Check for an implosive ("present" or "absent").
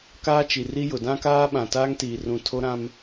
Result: present